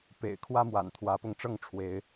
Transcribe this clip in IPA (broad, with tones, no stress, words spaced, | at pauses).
pḛ˨˩ɪ̯kʰwä˦mwa̰˨˩n t̪ʰwä˨˦pʊ˧ŋʈ͡ʂɤ˥˨ŋʈ͡ʂʰwe˨˦ɪ̯